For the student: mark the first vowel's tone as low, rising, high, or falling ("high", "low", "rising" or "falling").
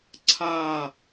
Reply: falling